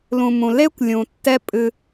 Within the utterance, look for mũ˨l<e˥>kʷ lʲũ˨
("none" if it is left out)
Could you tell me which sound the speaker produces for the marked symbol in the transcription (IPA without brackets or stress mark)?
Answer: e˥